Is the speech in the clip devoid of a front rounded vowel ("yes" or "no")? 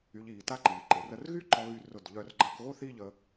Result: no